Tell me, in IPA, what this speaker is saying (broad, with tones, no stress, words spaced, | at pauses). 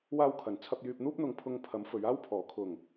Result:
waː˧wkʰɐ˨˩n t͡sʰɐ˧p̚jyː˧p̚n̪uː˥p̚n̪ʊ˧ŋ pʰʊ˧ŋ pʰɐ˨˥m fɵ˨˧ɥaː˥wpʰɔː˨˩ kʰʊ˨˩ŋ